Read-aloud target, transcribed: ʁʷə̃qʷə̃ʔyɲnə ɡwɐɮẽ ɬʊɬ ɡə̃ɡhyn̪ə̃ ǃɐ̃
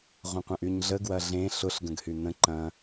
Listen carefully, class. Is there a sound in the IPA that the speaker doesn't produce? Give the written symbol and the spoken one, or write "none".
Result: n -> ɮ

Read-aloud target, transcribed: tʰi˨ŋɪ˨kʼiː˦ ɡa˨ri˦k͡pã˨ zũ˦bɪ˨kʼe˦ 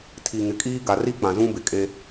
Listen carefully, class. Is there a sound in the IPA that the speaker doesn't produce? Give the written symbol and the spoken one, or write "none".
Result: none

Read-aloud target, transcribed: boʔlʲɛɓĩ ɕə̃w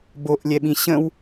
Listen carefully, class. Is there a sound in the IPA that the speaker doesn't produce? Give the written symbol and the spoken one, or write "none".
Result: none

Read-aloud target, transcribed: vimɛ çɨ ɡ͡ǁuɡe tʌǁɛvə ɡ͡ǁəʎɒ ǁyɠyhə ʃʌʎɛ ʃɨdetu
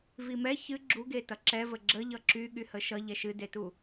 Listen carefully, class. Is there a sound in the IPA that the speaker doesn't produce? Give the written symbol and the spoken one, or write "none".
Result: ɒ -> ʌ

